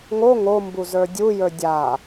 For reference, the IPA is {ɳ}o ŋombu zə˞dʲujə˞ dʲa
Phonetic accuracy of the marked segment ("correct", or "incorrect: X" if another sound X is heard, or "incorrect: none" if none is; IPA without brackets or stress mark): incorrect: ŋ